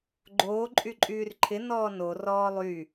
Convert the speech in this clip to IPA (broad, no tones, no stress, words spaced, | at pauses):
ɡ͡ǃoː ǃʼyǃʼyːrǃʰɪ nɔːno rɔːlˠy